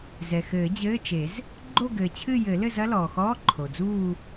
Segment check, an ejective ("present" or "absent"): absent